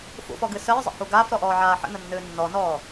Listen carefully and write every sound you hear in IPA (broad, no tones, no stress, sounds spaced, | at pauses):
f ṵ f ɔ ɡ ɨ s əː zˤ ə̰ h u ɡ aː f ɾ ɔ ʔ ɔː ʕ aː ħ ə̰ n ə nː ɨː nː ɔ n ɔː